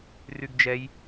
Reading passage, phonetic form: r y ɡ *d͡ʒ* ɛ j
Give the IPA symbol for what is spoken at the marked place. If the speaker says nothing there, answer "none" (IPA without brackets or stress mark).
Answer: d͡ʒ